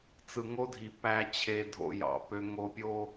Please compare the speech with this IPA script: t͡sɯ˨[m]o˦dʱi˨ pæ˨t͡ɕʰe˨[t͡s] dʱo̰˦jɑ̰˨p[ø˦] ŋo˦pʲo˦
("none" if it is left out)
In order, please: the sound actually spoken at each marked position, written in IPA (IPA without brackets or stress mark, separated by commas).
ŋ, none, ø˦